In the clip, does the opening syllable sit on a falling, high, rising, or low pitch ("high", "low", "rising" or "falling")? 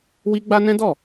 high